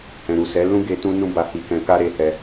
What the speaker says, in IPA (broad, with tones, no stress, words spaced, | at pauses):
hɛ̃˨ɾu˨sɛ˨˦lũ˦ ɡe˧ tũ˦nũ˦ba˧ hi˧kɛ̃˧ka˦ ɾe˧hɛ˧